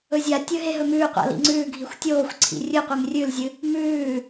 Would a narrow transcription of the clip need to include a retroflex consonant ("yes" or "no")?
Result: no